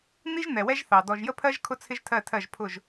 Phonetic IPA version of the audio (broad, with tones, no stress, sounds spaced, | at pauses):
n̪ i˦ ʒ n̪ ɛ˨ w ɛ˦ ʒ θ ɑ˨ d ɔ˨ ʒ j ə˦ pʰ ɜ˦ ʒ kʰ ʊ˦ t͡sʰ ɪ˦ ʒ tʰ ɜ˦˨ tʰ ɜ˦˨ ʒ pʰ ʊ˦˨ ʒ